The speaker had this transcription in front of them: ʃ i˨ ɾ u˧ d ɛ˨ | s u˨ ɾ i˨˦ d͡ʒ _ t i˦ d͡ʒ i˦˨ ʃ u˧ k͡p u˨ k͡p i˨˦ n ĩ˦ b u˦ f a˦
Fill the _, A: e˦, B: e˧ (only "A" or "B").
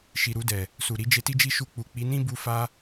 B